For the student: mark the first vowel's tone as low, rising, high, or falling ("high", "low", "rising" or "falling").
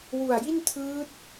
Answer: low